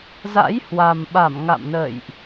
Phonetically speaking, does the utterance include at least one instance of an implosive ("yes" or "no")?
yes